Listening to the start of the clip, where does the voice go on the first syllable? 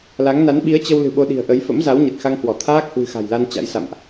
rising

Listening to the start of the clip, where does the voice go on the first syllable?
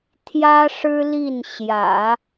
high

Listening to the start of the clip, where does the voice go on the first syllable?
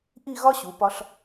falling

